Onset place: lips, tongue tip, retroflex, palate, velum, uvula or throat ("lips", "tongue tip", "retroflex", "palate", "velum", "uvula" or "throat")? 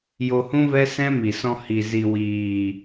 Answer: palate